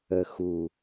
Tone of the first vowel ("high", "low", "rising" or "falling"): low